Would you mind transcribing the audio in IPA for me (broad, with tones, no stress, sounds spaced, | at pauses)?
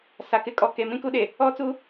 s a˨ k ɪ˦ kʼ ɔ˨ k e˨ m ĩ˦ k u˦ ɗ e˨ | ɔ˦ t͡s u˦